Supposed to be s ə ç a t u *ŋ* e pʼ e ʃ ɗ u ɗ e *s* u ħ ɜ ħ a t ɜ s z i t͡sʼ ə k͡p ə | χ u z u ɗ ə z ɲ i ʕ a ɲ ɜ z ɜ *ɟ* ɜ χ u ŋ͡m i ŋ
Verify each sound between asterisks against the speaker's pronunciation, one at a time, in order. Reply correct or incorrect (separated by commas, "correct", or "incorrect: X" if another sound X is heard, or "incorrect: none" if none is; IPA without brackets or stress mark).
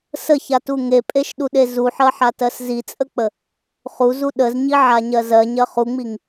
correct, incorrect: z, incorrect: ɲ